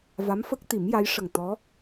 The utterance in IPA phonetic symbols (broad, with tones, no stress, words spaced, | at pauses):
va˧˥mfə˦˥k̚t̪i˨˩˦mja˧˥j ʂə˨˩ŋt̪ɔ˧˥